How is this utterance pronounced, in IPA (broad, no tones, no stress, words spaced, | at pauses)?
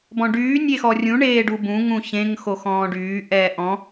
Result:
bɔ̃ɖyː nʲexɔrʲũ ɳeːɖubũ ŋũçẽŋ xoxɔ̃ːɖyː ʔɛːʔɔ̃